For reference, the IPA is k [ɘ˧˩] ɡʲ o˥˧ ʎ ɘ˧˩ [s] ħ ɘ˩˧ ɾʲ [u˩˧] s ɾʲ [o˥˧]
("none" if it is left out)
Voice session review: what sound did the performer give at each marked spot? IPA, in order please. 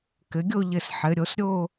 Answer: ɘ˩˧, s, o˩˧, o˥˧

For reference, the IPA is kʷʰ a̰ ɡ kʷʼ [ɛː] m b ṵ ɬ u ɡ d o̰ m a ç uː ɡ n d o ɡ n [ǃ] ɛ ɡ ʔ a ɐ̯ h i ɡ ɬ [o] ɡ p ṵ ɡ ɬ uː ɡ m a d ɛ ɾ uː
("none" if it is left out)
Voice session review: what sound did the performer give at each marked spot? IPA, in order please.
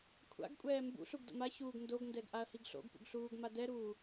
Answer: ɛː, d, o̰

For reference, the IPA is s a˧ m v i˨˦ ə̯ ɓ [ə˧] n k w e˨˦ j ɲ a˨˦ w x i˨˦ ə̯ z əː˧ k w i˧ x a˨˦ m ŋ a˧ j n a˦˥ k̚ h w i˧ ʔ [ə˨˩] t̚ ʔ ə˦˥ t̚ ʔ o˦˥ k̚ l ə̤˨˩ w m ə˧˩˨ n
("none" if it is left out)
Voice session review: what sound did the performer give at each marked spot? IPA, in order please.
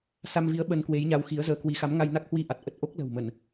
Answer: ə˧, a˨˩

